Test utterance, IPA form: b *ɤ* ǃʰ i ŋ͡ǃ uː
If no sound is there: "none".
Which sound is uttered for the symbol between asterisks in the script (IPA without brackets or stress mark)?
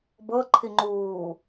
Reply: ɤ